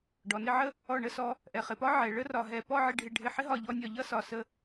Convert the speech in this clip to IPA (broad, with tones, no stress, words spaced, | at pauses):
ɖɔ˩˧nɪ˥˧ʕə˥˧ | ɔ˧˩ɳə˥˧sɔ˧ | ʔɛ˩˧χɪ˩˧pɒ˥ ʕɛ˩˧ ɭə˥rɒ˧˩ɦɛ˧˩ pɔ˥˧ʕɪ˧ ɖʱɪ˧˩ɖʱɪ˧˩ ħɪ˥ɦɒ˧˩ʎɔ˧nʲɒ˧˩ ʎʌ˥˧sɒ˩˧ sə˧